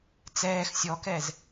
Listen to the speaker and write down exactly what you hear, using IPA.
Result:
t͡s ɛː x sʲ ɔ k ɛ z

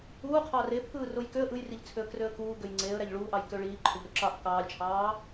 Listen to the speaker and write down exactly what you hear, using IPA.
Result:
uː qʰ ɑː r e pʰ ɯː r o j k ø ə̯ ʔ ɯ j r i ʎ t͡sʰ ø ə̯ k r ø ə̯ k uː ɡ ø j ŋ͡ǀ eː ə̯ ɾ æ ʎ ɭ uː ʔ ɑ j k ø ɭ iː ǃʰ ø ʎ ɾ o ǁ ɑ ʔ k ɑː lʲ t͡ʃʰ ɑː

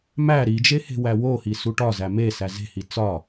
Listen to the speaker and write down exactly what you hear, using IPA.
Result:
m æ ɾ i d͡ʒ e h e̤ w æ w o h i s u ʈ ɒ z æ m e s æ z e̤ h i t͡s ɒ

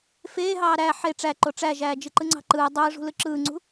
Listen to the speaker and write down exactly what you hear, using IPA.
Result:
f eː ɦ ɑː ɾ æ ħ e ʈ͡ʂ æ ǃ o ʈ͡ʂ æ ʒ æː d͡ʒ ɯ ǃ ɯ ŋ͡ǀ ɑ̤ ǃ ɯː dˤ ɯː ʐ ṳ l ɯ ǁ ɯː ŋ͡ǀ ṳ

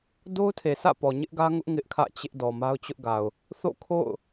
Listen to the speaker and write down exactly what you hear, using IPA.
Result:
d o˦ ʊ̯ tʰ e˨ sʰ ä̰˦˨ p ɔ˨ ɲ ɪ˦ ʔ ɡ ä˦ ŋ ʊ˦ ʔ ŋ ɪ˦ ʔ kʰ ä̰˦˨ t͡ɕ ɪ˦ ʔ d ɔ˨ m a˦ ʊ̯ t͡ɕ ʊ˦ ʔ ɡ a˨ ʊ̯ | θ o̰˦˨ kʰ o̰˦˨ ʊ̯

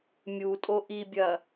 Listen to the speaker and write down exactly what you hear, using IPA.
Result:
mʲ u tʼ o ʔ i bʲ ɐ

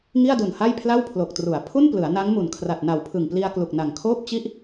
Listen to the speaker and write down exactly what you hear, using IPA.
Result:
ŋ i˥˩ a̯ d u˨˩ n h a˥˩ j pʰ l a˥˩ w pʰ l o˨˩ k̚ t r u˩˦ a̯ pʰ u˥˩ n p l ɯ˩˦ a̯ n a˦˥ ŋ m u˨˩ n kʰ r a˨˩ t̚ n a˨˩ w pʰ ɯ˨˩ ŋ p l i˧ a̯ k l u˨˩ k̚ n a˨˩ ŋ kʰ oː˥˩ p̚ t͡ɕ i˥˩ ʔ

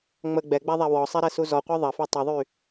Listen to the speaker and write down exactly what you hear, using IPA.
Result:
ŋ͡m ə ɡ͡b ɛ ɡ͡b a ðˤ a w ɔ sˤ ɛ ɾ ɛ s u z ɔ qʷ a ðˤ ɐ f ø tˤ ə ðˤ y

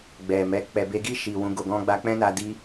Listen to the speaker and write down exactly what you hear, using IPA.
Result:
ɡ͡b ɛ˨ m ɛ˨˦ k͡p ɛ˧ b e˦ ɡ i˦˨ ʃ i˨ w ũ˨˦ ɡ o˧ ɡ ɔ̃˦ ɡ͡b a˦ k͡p ɛ̃˦ n a˧ d i˦

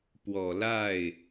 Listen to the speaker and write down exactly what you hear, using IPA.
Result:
p w ɔ˨˩ l a˥˩ ɪ̯

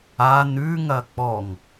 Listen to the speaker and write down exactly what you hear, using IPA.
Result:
a n ʉ ŋ ɐ k͡p ɔ ŋ

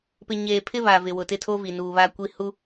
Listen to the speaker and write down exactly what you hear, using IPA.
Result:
p ɪ˨ ɲ eː˨ pʰ ɪ˦ β a˨ v ɪ˨ w ʊ˨ t ɪ˦ tʰ o˦ v i˨ n uː˨ β a˦ kʷ i˦ h u˦

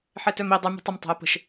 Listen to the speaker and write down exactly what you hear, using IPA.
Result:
ħ ɛ t œ m i dˤ y m ɛ̤ tˤ ə m tˤ e̤ ə̯ p ə̤ ʃ

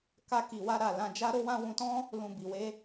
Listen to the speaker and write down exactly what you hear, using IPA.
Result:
k a˧ k i˨ w a˧ ɾ a˧ l ã˧ d͡ʒ a˦ ɾ o˦ w ã˦ w ũ˧ t ɔ̃˦ | l ũ˨ b i˨ w e˧

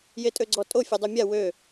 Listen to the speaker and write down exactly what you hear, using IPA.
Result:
j e tʼ ø ɡ͡ǀ ɔ tʼ o fʲ ɛ dˤ ø mʲ a w ø

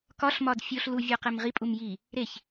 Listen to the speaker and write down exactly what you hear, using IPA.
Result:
k ɒ ɬ m ɒ d fʲ o ɬ l u vʲ ɒ q e m ʁ i pʼ u m j i | ɾ e ç

